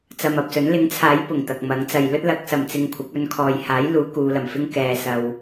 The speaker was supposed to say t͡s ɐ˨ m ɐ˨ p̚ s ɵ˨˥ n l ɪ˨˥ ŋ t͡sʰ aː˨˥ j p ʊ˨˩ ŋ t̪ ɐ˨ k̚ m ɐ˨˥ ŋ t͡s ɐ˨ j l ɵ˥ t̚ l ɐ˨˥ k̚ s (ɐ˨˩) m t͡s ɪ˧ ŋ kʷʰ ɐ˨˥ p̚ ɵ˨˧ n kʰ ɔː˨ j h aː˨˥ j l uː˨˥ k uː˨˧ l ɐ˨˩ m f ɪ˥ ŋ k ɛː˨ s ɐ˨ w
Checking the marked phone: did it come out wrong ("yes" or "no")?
yes